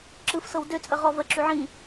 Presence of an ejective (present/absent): present